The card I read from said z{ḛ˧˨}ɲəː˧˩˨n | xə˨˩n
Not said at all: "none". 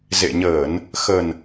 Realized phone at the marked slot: ḛ˧˨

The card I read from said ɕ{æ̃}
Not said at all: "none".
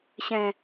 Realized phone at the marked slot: ɛ̃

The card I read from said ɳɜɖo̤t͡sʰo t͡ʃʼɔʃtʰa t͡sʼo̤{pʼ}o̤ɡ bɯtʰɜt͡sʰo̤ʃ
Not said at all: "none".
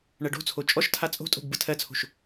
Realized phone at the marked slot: tʼ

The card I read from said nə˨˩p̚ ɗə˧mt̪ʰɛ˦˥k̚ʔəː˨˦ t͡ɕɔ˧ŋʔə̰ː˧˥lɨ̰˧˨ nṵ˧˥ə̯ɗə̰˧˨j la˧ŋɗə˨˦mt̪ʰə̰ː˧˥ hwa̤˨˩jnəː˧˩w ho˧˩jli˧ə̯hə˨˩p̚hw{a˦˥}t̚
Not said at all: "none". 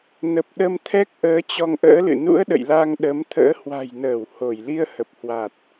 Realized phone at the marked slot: a˨˩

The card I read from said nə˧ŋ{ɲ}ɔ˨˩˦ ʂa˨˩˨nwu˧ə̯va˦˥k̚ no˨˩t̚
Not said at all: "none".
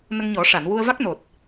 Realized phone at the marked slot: ɲ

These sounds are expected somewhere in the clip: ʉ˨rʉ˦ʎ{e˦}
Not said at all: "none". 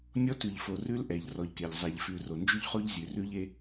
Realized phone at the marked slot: e˦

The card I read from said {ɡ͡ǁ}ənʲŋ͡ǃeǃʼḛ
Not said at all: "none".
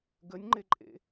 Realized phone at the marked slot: ɡ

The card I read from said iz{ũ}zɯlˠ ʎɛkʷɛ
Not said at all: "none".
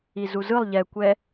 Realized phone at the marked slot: u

